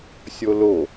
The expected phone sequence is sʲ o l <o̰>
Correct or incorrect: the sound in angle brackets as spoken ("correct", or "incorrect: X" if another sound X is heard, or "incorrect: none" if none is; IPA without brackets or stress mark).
incorrect: o